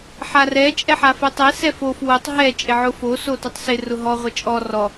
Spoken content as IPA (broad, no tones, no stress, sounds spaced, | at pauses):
ħ a r ɛ t͡ʃʼ ɛ ħ a f e tˤ e s ɛ f o f w ʊ tˤ ɦ ɛ t͡ʃʼ ɪ ʕ ʊ f o s o t o tˤ s ɪ r ʊ ɦ ɔ ʁʷ ɪ t͡ʃʼ ɔ r ɔ